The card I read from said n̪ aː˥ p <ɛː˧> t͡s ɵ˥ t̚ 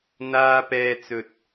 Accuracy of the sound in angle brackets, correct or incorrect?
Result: incorrect